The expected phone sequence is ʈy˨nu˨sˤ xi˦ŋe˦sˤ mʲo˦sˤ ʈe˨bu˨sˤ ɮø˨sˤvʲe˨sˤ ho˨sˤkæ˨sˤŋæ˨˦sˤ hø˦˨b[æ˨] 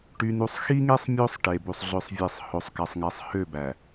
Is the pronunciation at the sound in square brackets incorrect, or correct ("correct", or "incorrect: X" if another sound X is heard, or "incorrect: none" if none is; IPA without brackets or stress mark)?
correct